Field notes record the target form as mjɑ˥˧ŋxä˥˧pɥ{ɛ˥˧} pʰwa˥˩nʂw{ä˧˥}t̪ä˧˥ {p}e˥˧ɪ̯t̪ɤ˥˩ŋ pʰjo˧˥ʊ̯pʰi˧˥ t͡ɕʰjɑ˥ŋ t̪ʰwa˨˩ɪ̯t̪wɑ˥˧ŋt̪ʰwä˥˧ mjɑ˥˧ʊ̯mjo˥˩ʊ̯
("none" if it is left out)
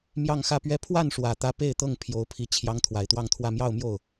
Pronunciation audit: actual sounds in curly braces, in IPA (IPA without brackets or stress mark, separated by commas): ɛ˥˧, ä˨˩, p